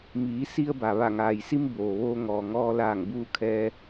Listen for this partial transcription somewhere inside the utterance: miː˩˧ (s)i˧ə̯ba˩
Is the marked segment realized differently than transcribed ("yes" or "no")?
no